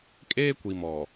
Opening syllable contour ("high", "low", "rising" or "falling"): high